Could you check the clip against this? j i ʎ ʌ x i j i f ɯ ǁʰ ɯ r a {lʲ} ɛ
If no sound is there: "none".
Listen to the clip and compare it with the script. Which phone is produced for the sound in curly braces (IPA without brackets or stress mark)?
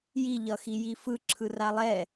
lˠ